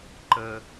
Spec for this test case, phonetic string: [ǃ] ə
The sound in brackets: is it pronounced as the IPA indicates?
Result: yes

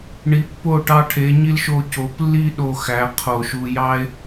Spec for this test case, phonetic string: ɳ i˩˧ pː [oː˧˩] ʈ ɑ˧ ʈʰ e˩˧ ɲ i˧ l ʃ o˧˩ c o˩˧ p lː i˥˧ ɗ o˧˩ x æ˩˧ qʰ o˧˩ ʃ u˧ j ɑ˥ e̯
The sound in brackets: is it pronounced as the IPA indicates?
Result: no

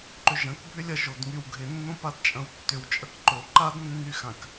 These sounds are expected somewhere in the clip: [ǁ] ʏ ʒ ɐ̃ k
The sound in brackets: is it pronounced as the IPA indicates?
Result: no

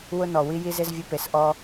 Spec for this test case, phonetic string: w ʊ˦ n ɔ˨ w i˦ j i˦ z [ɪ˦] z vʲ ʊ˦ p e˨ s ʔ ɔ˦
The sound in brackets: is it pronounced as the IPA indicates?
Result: yes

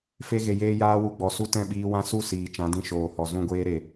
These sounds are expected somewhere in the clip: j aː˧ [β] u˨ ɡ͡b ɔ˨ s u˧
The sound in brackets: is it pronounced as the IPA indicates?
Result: no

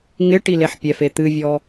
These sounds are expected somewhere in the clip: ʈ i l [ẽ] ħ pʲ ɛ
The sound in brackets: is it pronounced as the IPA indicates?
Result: no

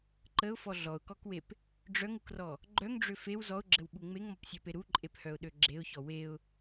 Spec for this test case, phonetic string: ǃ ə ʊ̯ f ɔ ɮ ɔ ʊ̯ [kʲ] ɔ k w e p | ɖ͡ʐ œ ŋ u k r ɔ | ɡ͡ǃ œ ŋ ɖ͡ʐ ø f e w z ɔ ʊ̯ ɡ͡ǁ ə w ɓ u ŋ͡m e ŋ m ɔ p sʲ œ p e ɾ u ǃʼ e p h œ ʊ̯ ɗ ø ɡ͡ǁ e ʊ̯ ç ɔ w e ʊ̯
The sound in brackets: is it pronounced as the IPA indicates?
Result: no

